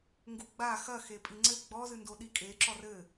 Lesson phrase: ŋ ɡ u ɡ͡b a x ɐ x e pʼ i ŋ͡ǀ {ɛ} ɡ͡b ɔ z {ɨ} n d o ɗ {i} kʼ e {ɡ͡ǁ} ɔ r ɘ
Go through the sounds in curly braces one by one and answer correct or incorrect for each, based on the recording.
incorrect: ɘ, correct, correct, incorrect: ǁ

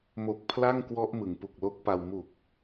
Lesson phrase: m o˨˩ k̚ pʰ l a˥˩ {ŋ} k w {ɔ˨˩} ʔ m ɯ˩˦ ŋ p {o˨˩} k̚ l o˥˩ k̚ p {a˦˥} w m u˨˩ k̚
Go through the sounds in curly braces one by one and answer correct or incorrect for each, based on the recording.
correct, incorrect: ɔ˦˥, incorrect: u˨˩, incorrect: a˧

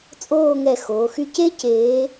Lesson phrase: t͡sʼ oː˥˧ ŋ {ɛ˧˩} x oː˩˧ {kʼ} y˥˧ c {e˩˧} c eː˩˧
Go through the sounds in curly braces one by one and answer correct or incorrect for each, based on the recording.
correct, incorrect: x, incorrect: e˥˧

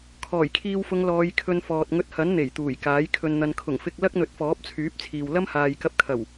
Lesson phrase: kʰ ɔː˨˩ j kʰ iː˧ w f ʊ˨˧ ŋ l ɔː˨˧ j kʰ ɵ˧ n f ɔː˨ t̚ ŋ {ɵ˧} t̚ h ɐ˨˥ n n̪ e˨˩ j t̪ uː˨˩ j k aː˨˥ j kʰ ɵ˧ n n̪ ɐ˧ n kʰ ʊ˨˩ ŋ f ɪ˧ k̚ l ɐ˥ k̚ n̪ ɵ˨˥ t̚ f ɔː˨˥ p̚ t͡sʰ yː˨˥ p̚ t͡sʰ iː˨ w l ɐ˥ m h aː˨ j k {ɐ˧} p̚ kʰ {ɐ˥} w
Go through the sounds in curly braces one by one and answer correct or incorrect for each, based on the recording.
correct, correct, incorrect: ɐ˨˩

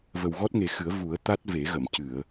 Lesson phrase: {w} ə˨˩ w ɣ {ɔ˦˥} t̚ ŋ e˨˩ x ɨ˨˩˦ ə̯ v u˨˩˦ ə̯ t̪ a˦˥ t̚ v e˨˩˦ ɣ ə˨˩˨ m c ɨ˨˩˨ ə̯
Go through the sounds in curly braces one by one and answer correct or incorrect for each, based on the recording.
incorrect: v, correct

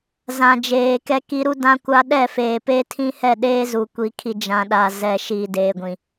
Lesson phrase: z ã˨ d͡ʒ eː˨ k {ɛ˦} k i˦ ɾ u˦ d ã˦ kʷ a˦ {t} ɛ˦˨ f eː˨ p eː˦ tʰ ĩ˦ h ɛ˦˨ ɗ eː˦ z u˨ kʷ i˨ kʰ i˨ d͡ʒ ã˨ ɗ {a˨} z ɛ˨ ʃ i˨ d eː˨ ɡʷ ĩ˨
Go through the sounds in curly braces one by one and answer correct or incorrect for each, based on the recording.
correct, incorrect: ɗ, correct

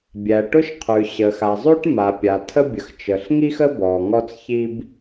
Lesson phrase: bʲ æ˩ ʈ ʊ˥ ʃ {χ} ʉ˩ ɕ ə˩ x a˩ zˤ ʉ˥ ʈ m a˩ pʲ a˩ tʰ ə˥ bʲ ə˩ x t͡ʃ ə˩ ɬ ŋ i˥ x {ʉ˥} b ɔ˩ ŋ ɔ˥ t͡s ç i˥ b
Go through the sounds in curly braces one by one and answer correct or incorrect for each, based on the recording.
incorrect: qʰ, incorrect: ə˥

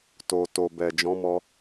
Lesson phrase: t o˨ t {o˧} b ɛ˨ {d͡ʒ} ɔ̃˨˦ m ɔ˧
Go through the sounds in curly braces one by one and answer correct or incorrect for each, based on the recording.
incorrect: o˨, correct

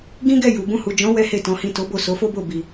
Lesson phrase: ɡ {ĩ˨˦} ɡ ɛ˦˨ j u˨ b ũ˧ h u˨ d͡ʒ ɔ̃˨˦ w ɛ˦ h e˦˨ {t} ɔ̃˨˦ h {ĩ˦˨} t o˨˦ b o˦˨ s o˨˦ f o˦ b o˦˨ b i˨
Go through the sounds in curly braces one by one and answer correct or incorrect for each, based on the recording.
incorrect: ĩ˦, correct, correct

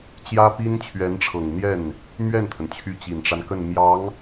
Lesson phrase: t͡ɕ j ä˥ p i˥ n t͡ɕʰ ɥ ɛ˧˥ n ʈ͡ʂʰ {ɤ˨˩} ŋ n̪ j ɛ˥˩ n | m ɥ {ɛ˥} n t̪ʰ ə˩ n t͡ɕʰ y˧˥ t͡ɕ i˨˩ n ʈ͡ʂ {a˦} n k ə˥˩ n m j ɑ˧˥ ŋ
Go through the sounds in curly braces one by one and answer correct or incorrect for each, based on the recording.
correct, incorrect: ɛ˥˩, correct

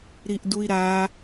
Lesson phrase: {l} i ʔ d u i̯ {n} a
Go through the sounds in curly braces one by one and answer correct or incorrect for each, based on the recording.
incorrect: ɾ, incorrect: ɾ

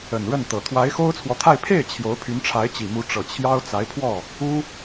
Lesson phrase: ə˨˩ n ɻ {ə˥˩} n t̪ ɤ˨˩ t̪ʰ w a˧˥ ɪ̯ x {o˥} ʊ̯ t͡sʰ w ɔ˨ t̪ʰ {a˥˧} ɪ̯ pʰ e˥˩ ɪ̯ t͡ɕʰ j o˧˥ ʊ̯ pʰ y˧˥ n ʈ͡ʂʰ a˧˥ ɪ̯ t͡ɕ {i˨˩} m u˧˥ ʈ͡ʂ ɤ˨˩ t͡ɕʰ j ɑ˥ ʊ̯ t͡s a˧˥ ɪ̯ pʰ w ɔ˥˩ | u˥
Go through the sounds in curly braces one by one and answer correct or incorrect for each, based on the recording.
correct, correct, correct, correct

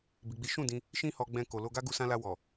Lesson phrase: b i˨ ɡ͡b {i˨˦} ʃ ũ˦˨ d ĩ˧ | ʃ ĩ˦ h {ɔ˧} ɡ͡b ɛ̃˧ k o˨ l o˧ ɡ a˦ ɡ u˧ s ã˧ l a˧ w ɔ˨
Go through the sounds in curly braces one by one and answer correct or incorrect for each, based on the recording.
correct, correct

